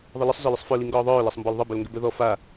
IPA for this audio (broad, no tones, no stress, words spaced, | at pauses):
ðˤələsˤ zɒləsˤfœ liŋɡɔːðˤœː lasˤmbɔlðˤə bœlŋɡʏbœðɔ fa